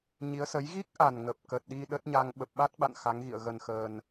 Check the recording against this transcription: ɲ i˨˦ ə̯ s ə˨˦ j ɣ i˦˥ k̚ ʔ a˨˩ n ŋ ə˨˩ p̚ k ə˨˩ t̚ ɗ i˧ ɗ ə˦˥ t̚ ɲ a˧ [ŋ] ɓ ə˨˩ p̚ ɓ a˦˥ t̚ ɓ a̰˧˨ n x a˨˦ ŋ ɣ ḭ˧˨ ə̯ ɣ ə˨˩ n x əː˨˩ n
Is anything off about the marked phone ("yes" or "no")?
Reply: no